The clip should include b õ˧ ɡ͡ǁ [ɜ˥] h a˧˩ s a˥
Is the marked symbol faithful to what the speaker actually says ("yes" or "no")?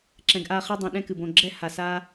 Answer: no